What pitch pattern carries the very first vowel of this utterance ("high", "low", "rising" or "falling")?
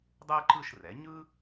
high